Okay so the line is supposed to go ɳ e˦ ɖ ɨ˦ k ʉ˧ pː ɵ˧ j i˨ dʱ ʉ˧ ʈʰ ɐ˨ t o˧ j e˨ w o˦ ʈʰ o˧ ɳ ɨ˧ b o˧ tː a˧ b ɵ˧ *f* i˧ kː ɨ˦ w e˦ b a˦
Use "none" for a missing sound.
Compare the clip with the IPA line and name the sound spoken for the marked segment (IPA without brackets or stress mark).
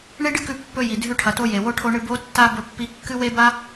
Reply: pː